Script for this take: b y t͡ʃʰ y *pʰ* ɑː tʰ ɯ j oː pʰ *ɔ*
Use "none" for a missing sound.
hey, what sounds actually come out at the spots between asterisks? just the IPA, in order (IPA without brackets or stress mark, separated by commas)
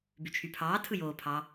pʰ, ɑ